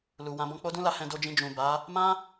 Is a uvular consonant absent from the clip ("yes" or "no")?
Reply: yes